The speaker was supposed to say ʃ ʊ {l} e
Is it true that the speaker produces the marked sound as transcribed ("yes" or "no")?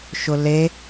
yes